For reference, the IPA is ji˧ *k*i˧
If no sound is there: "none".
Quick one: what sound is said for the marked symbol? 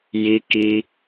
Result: k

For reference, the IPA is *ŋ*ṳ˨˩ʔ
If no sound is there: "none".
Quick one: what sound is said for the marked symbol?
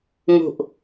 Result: ŋ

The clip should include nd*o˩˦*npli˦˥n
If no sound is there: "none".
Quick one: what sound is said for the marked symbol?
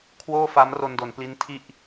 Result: o˩˦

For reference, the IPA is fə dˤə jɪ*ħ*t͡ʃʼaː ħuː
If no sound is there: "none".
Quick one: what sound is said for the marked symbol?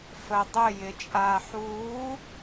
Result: none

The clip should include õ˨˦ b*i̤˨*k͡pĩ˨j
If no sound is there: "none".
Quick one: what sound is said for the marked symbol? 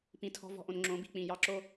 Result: i̤˨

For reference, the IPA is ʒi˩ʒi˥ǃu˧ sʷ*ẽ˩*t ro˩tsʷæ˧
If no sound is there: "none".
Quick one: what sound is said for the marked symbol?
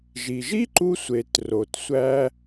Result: e˩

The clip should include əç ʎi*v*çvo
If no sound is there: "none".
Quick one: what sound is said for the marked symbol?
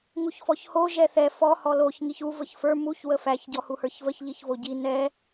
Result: none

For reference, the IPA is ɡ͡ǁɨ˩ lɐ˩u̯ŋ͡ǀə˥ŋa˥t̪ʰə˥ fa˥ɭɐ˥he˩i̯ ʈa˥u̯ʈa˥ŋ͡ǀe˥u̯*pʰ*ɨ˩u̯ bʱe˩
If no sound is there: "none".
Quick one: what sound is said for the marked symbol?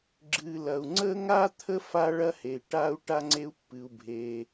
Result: pː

